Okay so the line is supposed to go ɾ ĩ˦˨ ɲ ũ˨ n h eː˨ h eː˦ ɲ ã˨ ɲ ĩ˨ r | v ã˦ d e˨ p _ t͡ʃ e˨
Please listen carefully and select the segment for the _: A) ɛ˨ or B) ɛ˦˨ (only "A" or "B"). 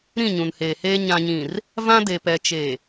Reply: A